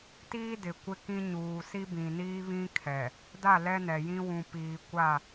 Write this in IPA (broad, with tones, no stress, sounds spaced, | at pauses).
t iː˦ d ɪ˨ kʷ ɪ˦ k ĩ˦ ɲ uː˨ s i˦ b ĩ˨ n iː˦ β ĩ˦ kʰ ɛ˨ | d a˦˨ l ɛ˦ n ɛ˨ j ĩ˦ w ũ˨ p iː˨ kʷ a˦˨